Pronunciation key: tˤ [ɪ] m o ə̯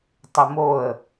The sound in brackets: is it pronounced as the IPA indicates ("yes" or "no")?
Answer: yes